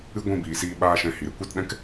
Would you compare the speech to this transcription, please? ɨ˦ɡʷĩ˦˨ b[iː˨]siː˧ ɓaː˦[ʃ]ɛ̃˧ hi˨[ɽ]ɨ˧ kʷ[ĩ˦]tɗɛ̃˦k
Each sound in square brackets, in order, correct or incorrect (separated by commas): correct, correct, incorrect, incorrect